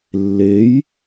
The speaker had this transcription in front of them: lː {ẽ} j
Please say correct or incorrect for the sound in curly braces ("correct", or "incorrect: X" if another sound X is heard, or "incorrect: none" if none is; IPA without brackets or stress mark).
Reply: incorrect: e